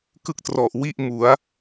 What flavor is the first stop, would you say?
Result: plain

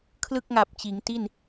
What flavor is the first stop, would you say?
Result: aspirated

